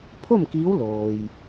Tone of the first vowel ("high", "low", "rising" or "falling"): falling